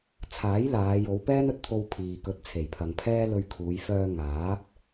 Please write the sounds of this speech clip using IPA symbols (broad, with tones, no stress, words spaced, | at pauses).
t͡sʰaː˨˥j laː˨˧jo˨˧wpɛː˥n ɵ˧t̚t̪ʰo˧wpʰiː˨ kɵ˨˥t̚t͡sʰe˨˩jpʰɐ˨ŋ pʰɛː˥lɵ˧ɥkʰuː˨˧j fœː˧ŋaː˨˥p̚